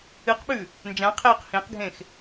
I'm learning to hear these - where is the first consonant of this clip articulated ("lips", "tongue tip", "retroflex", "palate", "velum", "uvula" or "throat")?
uvula